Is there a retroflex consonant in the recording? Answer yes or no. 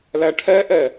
yes